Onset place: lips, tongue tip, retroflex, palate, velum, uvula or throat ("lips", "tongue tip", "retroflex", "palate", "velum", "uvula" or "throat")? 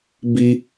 lips